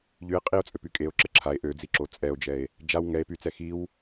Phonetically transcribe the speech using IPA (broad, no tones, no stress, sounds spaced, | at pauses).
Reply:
ʎ y e̯ qʼ i o̯ t͡sʼ ø p y kʼ e o̯ ǁ ə ǁʰ a e̯ ʔ ø d͡z i ǁ o t͡sʼ ɛ o̯ d͡ʒ ɛ e̯ | d͡ʒ a w ŋ ɛ e̯ p y t͡s ɛ x i w